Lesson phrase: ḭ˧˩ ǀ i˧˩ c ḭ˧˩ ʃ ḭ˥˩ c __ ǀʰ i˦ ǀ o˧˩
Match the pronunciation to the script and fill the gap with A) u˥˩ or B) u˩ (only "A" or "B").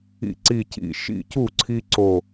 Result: A